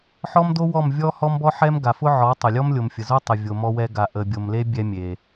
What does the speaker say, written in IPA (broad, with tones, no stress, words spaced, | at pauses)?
ħɔ˦mdo˦wɔ˦˨m vʲɔ˦ hɔ˦mbɔ˦ħɛ˦mɡa˨ fʊ˦ʕɔ˨˦tˤə˨ lʲɔ˦mlʲo˨mfʲə˨zo˦ tˤə˨ vʲo˨ mɔ˧wɛ˧ɡa˨ ʔə˨bʲo˨mle˦ bʲɛ˦mʲe˨